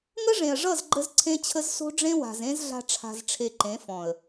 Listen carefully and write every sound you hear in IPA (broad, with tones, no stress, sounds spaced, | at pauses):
ŋ ə˦ ʐ ẽ˨ ə̯ ʐ ʌ˦˨ z ɡ͡ǃ ə˦ z ǀʰ ẽ˦ t͡ɕʰ ə˦ z s o̤˦ ɖ͡ʐ ẽ˦ w a̤˨ z ẽ˦ z ɮ a̤˦ ʈ͡ʂʰ a̤˧ z ʈ͡ʂʰ e˧ ǃ ẽ˨˦ f ɔ̃˨ ə̯